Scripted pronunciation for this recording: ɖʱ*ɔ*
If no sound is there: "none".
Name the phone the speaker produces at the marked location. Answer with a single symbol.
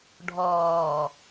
ɔː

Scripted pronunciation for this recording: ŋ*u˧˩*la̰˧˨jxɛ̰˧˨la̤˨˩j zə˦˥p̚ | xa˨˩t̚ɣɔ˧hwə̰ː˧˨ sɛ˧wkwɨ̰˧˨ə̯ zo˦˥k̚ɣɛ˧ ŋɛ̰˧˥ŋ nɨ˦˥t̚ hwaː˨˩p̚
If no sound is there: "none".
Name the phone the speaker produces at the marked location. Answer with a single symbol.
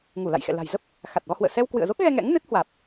u˧˩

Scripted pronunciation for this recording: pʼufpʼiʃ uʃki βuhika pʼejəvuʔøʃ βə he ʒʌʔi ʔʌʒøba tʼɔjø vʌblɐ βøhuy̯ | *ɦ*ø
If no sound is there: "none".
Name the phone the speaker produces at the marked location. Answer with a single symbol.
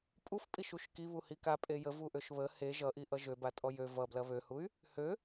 h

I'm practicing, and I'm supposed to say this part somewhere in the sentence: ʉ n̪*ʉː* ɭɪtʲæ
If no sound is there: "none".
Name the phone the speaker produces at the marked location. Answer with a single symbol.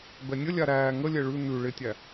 ʉ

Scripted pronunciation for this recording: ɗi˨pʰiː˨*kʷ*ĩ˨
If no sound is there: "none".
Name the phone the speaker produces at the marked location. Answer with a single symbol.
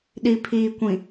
kʷ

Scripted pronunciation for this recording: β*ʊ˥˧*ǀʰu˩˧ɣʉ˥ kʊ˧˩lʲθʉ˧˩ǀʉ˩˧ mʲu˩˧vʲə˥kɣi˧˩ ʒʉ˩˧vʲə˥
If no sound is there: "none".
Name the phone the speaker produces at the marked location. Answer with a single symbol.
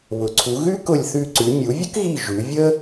ʊ˩˧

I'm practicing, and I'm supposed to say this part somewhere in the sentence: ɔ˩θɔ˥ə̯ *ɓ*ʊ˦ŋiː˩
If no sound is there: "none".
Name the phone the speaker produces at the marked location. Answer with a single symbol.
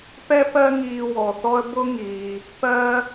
b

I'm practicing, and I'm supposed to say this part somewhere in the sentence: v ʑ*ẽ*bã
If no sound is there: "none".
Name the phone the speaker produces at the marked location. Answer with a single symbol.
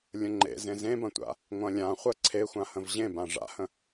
ẽ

